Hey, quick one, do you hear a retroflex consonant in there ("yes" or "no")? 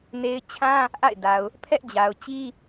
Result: no